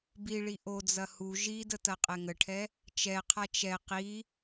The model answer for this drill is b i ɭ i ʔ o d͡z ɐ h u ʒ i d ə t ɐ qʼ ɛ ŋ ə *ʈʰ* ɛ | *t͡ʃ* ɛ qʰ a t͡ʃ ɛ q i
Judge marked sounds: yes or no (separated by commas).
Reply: yes, yes